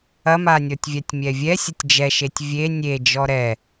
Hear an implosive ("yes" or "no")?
no